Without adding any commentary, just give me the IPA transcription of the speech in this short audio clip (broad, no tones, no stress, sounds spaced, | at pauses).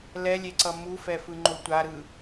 l ɛ lʲ e ǀ ʌ m u f ɛ f ɯ ŋ͡ǃ o tʷ a ɾ ɯ